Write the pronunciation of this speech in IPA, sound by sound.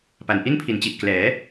p a˩˦ n ʔ i˥˩ n pʰ i˩˦ n t͡ɕ i˨˩ ʔ k l ɛː˩˦

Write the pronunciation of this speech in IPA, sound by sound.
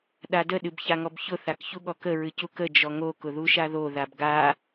ɗ a d ə ɗ ɨ b ç a ŋ ɔ b ç ʊ θ a k ç u ɠ ɔ k ə ɹ ɨ c u k ə d͡ʒ ɔ ŋ o k ʊ ð u ʃ a ð o ð a b ɡ a

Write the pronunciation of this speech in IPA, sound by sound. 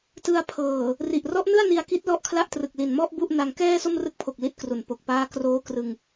t ɯ˧ a̯ pʰ ɤː˨˩ | r i˨˩ ʔ r ɔ˦˥ ʔ n ɯ˥˩ a̯ n i˧ a̯ k i˦˥ t̚ l ɔ˦˥ ʔ kʰ l a˥˩ ʔ t r ɯ˨˩ k̚ l i˨˩ n m ɔ˥˩ ʔ b u˥˩ ʔ n a˧ ŋ k ɛː˥˩ s o˥˩ m r ɯ˦˥ k̚ pʰ o˨˩ k̚ l i˥˩ t̚ k r u˨˩ n p o˨˩ k̚ p aː˦˥ k r oː˦˥ k r ɯ˧ ŋ

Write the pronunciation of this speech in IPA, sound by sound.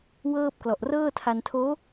w ɤː˥˩ p̚ k l ɔ˨˩ ʔ r ɤː˥˩ tʰ a˧ n tʰ oː˦˥

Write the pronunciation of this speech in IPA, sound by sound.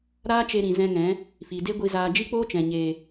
ɾ aː˦ t͡ʃ e˧ ɾ ĩ˨ z ɛ̃˧ ŋ ɛ̃˨˦ | f i˨ d e˦ ɡʷ i˧ z aː˧ d͡ʒ i˦ k͡p oː˦ t͡ʃ ɛ̃˨ ɲ eː˨

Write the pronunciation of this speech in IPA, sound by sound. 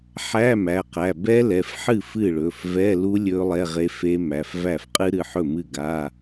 ħ æ˧˥˧ m æ˩˧˩ q æ˩˧˩ b ɛ˦˥ l ɛ˩˧˩ f ħ ɨ˥˩ f ɨ˥˩ ɭ ɵ˩˧˩ f v ɛ˧˥˧ l u˦˥ lʲ ɵ˦˥ lˠ ɛ˧˥˧ ʁ e˦˥ f e˦˥ m æ˩˧˩ f v æ˥˩ f qʼ ɨ˦˥ ɾ ɨ˩˧˩ ħ ɵ˥˩ m ɨ˥˩ ɡ a˧˥˧

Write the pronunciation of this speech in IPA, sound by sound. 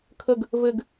kʰ ə ɡ | v ɘ ɡ

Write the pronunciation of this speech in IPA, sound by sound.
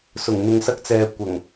s ʊ˨˩ ŋ n̪ ʊ˨ ŋ s ɐ˧ k̚ t͡s ɛː˨ kʷ ɐ˨˩ ŋ

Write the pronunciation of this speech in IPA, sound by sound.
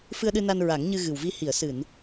f ɨ˧ ə̯ ɗ ɨ˧ n a˧ n ɹ a˨˩˦ ŋ ɲ ɨ˧ ɣ ɨ˨˩ w v i˧ h i˨˩˨ ə̯ s ɨ˨˩˨ n

